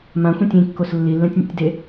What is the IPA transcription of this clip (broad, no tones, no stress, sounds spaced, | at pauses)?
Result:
m ã xʷ ɛ̃ tʲ ĩ kː o s lː i lː ɛ̃ tʲ nʲ ɛ̰ tʲ d e